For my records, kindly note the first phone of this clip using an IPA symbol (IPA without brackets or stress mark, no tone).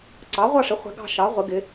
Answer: ǀ